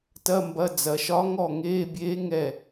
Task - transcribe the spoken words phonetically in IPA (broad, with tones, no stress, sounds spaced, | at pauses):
t ɐ˧˥˧ m b ɐ˧˥˧ d͡z ɐ˩˧ ʃ ɒ˧˥ ŋ ɔ˥˩ ŋ eː˧˥˧ bʲ eː˧˥ ŋ ɛ˥˩